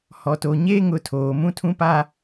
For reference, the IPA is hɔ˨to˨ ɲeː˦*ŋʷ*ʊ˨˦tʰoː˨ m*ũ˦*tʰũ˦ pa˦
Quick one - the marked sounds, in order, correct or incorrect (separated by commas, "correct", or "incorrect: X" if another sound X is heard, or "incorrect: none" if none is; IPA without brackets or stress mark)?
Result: incorrect: ŋ, correct